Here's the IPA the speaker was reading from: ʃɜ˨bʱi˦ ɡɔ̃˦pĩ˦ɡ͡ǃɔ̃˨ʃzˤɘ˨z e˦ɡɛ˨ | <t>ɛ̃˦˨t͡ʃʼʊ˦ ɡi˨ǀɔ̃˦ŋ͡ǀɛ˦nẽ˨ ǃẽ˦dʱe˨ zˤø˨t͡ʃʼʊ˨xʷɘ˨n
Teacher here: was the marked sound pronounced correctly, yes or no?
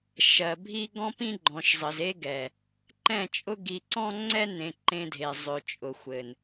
no